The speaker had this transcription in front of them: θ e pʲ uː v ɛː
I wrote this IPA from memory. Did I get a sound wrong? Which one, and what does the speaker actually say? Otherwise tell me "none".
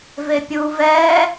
θ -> v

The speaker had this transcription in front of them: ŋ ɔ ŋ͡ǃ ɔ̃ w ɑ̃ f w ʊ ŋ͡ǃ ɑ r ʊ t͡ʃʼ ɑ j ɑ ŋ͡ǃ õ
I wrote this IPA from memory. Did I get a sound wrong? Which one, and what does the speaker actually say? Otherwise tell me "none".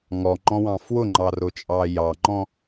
õ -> ɔ̃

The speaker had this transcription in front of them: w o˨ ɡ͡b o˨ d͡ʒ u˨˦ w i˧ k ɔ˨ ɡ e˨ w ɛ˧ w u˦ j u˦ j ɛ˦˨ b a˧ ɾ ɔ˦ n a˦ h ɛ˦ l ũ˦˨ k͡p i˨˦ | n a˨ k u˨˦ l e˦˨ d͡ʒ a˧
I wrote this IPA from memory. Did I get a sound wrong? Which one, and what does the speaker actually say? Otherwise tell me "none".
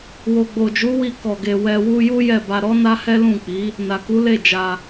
none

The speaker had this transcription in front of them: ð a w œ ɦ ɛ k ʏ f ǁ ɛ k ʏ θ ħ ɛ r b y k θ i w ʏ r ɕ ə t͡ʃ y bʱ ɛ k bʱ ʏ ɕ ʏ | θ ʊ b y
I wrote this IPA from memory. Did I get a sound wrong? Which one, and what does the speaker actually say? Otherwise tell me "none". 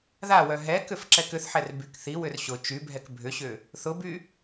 ə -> ʊ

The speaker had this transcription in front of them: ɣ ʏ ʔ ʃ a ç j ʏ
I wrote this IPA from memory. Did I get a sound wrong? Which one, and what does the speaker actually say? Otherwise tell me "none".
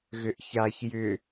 ʃ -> ç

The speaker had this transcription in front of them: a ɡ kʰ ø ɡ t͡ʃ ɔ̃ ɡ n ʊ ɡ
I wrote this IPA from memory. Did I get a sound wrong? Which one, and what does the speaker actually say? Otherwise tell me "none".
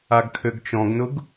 none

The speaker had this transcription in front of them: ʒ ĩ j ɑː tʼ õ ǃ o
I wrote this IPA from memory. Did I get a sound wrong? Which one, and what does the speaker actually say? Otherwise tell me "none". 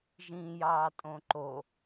none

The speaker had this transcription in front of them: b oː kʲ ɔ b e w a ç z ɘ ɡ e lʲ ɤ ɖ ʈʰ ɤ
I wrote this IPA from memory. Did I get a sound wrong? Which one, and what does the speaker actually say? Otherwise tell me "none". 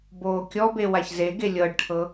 ɘ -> e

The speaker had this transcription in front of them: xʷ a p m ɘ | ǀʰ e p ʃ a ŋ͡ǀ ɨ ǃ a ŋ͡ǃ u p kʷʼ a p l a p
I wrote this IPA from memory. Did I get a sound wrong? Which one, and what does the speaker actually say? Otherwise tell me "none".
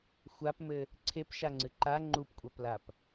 none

